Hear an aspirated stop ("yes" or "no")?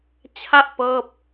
yes